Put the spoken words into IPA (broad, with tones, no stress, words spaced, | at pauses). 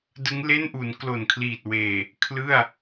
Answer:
dɯ˦˥ŋle˥˩nʔu˩˦n klo˨˩nkʰliː˨˩t̚ weː˨˩ | kʰlɯ˥˩a̯